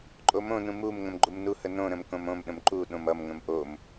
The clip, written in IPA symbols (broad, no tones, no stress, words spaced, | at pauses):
ǃʼomõnũ mum ŋə̃mɡ͡ǃumnuhə nõ ɾə̃mkõmõmɗə̃m ǃu ɗõmʌmŋə̃m ʔom